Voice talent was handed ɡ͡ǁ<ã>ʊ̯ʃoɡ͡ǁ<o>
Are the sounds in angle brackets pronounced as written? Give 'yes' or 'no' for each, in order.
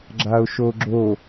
no, yes

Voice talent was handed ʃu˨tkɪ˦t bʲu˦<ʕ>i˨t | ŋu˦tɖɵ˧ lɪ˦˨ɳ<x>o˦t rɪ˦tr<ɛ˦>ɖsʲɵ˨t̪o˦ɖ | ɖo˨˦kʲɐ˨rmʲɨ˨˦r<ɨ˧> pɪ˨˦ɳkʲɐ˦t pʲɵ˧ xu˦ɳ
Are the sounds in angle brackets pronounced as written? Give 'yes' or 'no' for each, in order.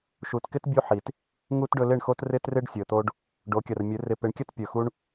no, yes, no, no

